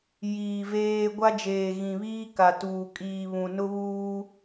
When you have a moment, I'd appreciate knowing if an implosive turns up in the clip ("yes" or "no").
no